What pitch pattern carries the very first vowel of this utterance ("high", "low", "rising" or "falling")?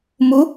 rising